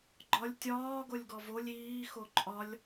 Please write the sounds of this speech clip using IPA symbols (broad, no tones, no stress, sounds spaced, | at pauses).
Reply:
ɡ͡ǃ ɒ lʲ tʲ ɒː ɡ o lʲ ɡ ɔ v o lʲ iː x o ǃʼ ɒ lʲ